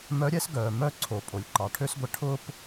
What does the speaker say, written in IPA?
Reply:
mœ˧˥ɾʲɛ˥s ɡœː˩ mœ˥ǀʰo˩ pʼo˩lʲǃɑ˩ʈʰø˥sɡʷə˧ ʈʰʊː˥p

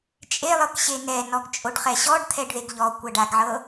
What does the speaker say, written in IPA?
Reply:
t͡ʃʼelˠɤk ɕenɛ nɔɡt͡ʃʼoɖχɛɕɔɖ t̪ʰɛɖðeɡʎɔ kʷaɖaɡʕɤ

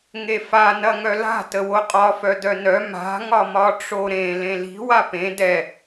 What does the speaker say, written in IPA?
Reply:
ŋefa nɐŋœla̤ təwoqʼɒ fœdœnœ ma̤ ŋɒmɒʈ͡ʂoɾẽ lẽli̤ wapẽ dɛ

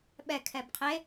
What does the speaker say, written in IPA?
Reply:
ɓɛkʰɛb qʰe

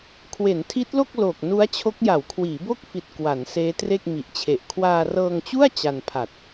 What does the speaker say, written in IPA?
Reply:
kʰwe˩˦ntʰi˦˥t̚lo˥˩k̚ loː˨˩k̚nu˦˥a̯t͡ɕʰo˦˥k̚ ja˩˦wkʰwiː˩˦bo˥˩k̚fi˨˩t̚ kwa˩˦nseː˦˥tre˥˩k̚ mi˨˩ʔt͡ɕʰe˨˩ʔ kʰwaː˧rɤː˧ŋt͡ɕu˥˩a̯ t͡ɕa˧npʰa˨˩t̚

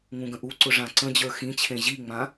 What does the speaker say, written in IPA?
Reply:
ŋũɡə̃ʔuǀʊ ʐãǀə̃d͡ʑə˞ xĩt͡ɕʰẽ ʑiŋ͡mã

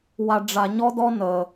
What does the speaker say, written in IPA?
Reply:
wa˧ɖ͡ʐa˧ ɲɔ˥dɔ˥ nəː˧

